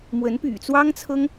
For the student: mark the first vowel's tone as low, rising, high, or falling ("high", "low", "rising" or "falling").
rising